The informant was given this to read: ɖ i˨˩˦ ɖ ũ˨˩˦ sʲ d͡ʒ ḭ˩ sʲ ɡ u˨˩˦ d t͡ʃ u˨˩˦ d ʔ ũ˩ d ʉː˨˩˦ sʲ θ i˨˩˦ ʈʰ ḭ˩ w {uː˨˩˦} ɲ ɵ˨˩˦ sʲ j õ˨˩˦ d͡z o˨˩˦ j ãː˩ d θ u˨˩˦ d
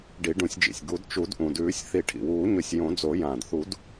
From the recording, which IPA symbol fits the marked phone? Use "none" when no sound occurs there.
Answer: uː˨˩˦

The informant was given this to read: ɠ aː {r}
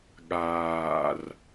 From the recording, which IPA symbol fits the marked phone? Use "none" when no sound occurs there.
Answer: r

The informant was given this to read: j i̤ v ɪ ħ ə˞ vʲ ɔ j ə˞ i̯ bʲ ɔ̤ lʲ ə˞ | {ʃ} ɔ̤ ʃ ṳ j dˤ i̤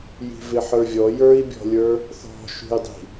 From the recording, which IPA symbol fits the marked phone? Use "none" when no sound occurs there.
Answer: θ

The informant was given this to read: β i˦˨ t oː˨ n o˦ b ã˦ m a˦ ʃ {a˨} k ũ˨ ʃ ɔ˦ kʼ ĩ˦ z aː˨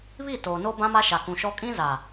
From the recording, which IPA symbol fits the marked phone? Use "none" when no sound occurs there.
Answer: a˨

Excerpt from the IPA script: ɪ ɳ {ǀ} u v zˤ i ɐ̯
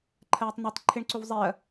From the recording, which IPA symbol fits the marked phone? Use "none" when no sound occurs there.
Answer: ǀ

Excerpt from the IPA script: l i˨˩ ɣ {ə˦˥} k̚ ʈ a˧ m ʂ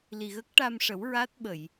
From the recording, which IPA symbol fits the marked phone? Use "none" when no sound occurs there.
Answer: ə˦˥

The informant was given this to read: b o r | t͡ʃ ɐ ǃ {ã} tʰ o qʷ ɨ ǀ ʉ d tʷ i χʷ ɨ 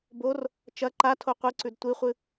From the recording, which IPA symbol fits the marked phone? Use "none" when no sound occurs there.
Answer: a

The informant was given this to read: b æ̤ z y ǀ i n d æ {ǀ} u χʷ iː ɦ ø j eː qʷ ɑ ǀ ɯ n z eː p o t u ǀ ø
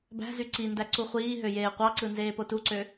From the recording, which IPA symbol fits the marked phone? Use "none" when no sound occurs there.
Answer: ǀ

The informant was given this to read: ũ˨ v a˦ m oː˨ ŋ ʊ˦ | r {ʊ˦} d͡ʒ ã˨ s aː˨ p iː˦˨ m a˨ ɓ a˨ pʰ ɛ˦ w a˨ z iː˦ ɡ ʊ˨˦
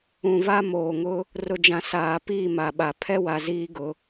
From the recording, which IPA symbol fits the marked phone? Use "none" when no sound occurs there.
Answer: ʊ˨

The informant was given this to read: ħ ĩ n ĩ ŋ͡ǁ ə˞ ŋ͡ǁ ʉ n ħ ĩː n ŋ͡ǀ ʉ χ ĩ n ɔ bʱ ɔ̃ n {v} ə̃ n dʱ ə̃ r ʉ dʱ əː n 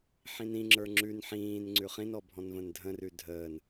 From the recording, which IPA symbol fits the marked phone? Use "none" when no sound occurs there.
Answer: v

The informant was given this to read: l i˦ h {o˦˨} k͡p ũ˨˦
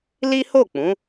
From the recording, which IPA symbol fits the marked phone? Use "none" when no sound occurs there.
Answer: o˦˨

